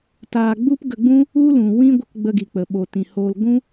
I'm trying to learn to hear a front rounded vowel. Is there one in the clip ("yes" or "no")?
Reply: no